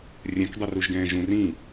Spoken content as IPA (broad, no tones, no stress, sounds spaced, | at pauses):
rʲ ɛ̃ k dˤ o r u ʒ ɡ ɛ̃ː ʒ ũ r ĩ